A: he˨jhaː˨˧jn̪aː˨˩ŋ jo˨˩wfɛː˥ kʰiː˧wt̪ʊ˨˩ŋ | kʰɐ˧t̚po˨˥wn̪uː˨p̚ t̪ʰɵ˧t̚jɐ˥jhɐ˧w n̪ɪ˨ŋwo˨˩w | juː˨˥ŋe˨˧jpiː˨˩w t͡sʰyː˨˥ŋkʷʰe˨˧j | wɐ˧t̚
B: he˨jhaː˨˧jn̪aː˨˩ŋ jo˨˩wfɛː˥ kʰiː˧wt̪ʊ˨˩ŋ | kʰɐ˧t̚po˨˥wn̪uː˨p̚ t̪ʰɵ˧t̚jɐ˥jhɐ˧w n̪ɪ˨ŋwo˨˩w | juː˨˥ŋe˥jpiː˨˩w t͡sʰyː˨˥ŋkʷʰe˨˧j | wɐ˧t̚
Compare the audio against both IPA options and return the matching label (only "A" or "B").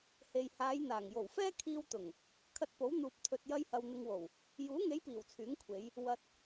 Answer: A